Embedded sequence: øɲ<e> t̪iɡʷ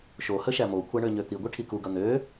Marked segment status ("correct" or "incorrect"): incorrect